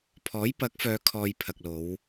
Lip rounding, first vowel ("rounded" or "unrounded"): rounded